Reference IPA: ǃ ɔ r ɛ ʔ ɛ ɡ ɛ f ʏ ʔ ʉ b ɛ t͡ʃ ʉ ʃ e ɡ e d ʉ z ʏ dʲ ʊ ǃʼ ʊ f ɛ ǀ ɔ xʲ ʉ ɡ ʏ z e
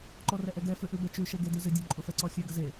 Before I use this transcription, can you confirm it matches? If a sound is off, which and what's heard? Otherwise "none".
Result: none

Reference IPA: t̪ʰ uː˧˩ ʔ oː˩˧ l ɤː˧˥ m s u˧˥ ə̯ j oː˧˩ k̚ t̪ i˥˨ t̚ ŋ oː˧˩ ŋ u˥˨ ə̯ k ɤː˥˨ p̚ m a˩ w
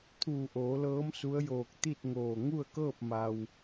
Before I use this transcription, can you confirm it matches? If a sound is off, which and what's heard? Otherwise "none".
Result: none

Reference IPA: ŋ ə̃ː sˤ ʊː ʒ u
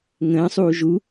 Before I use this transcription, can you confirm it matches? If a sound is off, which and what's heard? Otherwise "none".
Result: ʊː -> uː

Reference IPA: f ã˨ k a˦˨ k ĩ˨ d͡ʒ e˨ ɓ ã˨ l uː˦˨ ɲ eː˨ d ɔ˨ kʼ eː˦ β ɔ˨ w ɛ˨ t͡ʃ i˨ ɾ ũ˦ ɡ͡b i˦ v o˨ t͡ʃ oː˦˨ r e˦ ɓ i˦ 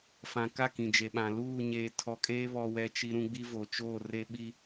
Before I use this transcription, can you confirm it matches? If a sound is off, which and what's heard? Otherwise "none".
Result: d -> tʰ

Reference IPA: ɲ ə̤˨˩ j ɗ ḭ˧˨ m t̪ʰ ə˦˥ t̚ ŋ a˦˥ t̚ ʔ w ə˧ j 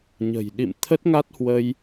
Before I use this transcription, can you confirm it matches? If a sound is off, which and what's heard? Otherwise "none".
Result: ʔ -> h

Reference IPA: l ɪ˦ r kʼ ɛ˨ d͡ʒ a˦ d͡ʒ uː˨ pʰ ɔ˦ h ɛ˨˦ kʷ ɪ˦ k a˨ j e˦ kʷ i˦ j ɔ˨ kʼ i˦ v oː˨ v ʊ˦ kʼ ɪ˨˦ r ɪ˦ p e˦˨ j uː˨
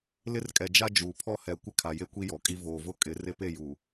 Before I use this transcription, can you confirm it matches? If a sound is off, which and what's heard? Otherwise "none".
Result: k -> kʰ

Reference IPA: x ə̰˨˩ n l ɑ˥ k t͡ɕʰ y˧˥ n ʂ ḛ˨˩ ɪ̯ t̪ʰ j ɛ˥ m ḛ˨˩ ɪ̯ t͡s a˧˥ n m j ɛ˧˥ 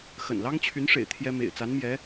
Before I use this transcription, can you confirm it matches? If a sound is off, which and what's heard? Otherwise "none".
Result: k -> ŋ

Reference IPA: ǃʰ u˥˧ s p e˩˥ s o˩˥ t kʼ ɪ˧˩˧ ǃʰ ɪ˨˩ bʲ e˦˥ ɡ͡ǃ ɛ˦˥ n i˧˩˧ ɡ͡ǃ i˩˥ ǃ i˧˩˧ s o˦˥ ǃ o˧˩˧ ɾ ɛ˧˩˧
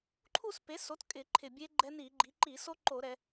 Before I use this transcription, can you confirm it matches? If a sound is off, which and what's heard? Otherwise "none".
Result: none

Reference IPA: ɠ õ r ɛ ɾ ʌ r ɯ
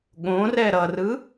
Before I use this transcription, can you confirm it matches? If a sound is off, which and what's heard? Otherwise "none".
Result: none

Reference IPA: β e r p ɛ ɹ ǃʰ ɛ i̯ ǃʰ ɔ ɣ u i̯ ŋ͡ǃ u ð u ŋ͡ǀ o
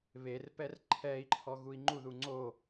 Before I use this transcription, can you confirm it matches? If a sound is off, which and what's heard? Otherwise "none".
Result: ɹ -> r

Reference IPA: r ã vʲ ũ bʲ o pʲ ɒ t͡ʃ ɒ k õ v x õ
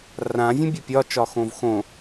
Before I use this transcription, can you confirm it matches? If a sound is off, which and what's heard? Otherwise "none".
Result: k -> x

